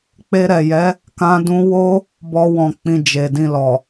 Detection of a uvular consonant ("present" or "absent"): absent